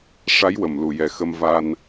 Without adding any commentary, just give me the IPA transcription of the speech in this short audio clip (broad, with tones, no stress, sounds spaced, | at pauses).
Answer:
ʂ a˧˥ j w ə˨˩ m l u˨˩ j ɛ˨˩˦ x ə˧ m v a˧ n